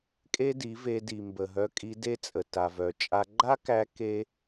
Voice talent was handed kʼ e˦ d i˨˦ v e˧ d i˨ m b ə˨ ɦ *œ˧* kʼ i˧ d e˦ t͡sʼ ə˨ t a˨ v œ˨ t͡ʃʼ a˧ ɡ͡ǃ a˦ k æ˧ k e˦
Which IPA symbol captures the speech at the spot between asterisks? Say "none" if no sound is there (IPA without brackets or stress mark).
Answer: œ˧